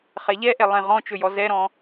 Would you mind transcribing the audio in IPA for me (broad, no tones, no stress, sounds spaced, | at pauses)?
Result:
χ ɛ ʎ ɛ ʔ ɛ lˠ ẽ ʁ ɔ̃ t͡ʃ ɵ j ɔ z ɛ ɾ ɔ̃